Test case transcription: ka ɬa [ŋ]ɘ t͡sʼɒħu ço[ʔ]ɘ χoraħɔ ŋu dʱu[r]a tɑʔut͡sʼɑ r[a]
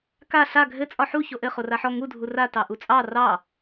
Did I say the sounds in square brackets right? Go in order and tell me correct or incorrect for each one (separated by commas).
incorrect, correct, correct, incorrect